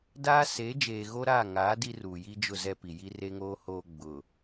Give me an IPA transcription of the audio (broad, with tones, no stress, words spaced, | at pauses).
daː˦seː˨˦d͡ʒeː˨ ɣo˦ɾaː˦˨ ŋaː˨˦ di˦ruː˨ji˦ d͡ʒʊ˦˨ zɛ˦ pi˨ji˦re˦ŋoː˦ hoː˨ ɡ͡bʊ˨